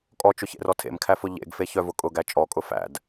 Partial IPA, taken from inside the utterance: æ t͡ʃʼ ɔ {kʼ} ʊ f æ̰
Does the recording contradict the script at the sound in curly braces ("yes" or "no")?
no